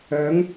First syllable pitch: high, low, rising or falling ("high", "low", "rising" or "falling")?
rising